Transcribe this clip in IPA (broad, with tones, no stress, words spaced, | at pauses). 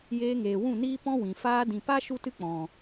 jeː˧ŋeː˨wũ˦˨niː˦ pɔ̃˦wĩ˨ faː˧dĩ˨pa˦ ʃu˦tɨ˦k͡pɔ̃˨